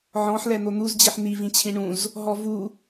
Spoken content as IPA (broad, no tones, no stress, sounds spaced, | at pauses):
ʕ ɔ̃ ħ l ɛ n̪ o n̪ u z d͡ʑ i ħ n̪ i v ĩ t͡ɕʰ ĩ ɳ ũ z | ɦ ɔ v u